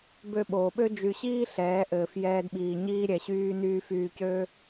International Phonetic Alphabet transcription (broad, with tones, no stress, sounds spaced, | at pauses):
b ø˧ ɓ oː˨ ɓ ø˦ d͡ʒ y˨ ɕ iː˦ ɬ ɛː˨˦ ʔ ɘː˨ f j ɛː˧ d ɓ iː˨ ɲ iː˧ ɾʲ ɛ˨ ɕ yː˧ n yː˧ f yː˧ c ø˦